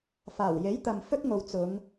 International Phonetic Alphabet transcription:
f aː˨˩ w j e˨˥ j t̪ ɐ˨ m f ɵ˥ t̚ ŋ o˨˧ w t͡s ʊ˨˧ ŋ

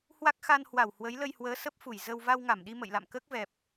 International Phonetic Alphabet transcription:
h w a˦˥ k̚ x a˧ n h w a˧˩ w h w ə˨˦ j l ə˧ j h w əː˨˦ s ə˦˥ p̚ f u˧˩ j z ə˧ w v a˧ w ŋ a˧˩ m ɗ i˧ m ə̰˧˨ j l a̰˧˨ m k əː˦˥ k̚ v ɛ˨˩ p̚

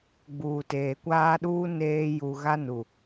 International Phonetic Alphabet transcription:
ɡ͡b uː˨ t eː˨ kʷ aː˦ ɗ uː˦ n eː˦ j u˨ ɣ a˦ n u˨

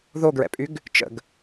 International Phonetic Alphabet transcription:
ð o ɡ ɹ ɛ̰ pʼ y ɡ | t͡ʃ ə̰ ɡ

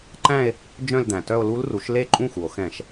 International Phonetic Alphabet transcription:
ǃ æ̃˥˧ e̯ | d͡ʒ œ̃˥˧ l d̪ æ̃˩ t œ˥˧ o̯ l u˦˥ l r u˩˥ ʃ l e˥˩ ǃʼ ũ˥˩ x u˩ o̯ x ɛ̃˧˩˧ ʃ

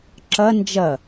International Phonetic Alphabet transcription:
ǁ ɐ n d͡ʒ ɐ

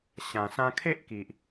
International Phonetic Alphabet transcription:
ɕ ã˨˩ s ã˧ kʰ e˦ ʔ k i˨ ʔ

